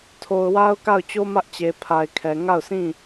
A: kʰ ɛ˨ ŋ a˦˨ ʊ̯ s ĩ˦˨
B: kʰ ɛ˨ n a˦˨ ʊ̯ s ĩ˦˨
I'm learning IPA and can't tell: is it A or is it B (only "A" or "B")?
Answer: A